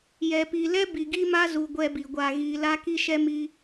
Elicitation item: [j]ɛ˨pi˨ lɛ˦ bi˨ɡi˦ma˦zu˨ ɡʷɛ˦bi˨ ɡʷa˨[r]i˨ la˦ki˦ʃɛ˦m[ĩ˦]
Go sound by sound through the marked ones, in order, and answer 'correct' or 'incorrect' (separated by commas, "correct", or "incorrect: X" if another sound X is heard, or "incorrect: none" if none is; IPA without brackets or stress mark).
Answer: correct, incorrect: ɣ, incorrect: i˦